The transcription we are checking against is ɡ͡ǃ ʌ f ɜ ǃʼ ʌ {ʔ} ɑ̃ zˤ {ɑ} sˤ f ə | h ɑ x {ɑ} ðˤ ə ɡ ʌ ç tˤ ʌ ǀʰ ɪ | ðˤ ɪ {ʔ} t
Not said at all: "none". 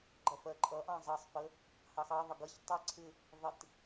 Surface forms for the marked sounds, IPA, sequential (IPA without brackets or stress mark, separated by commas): ʔ, ɑ, ɑ, none